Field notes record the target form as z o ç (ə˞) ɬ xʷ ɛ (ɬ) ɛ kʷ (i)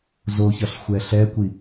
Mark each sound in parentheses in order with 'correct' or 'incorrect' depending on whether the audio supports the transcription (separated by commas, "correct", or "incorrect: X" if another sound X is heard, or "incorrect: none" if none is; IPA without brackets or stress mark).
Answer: incorrect: ʌ, correct, correct